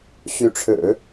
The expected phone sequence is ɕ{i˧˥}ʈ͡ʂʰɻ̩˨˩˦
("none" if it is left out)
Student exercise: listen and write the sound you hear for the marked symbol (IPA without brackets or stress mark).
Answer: y˧˥